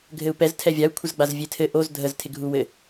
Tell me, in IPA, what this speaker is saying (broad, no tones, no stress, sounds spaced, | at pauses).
ɡʱ ɘ u̯ p ɛ z tʰ ɛ vʲ a u̯ kʷʰ ə z ɡ͡b a z vʲ e tʰ ɘ ʔ o z dʱ ə z tʰ ɪ ɡʱ u w ɘ